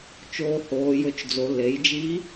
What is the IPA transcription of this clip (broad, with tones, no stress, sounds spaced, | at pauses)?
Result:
t͡ʃ oː˧ h oː˩˧ j ɵ˧ t͡ʃ d͡z o˩˧ l e˩˧ j d͡ʒ i˧˥